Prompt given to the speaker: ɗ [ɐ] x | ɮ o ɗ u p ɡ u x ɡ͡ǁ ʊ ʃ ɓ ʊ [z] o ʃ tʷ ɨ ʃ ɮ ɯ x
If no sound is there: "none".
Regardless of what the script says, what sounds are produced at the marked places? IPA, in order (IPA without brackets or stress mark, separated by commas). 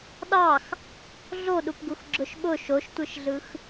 ɑ, ʃ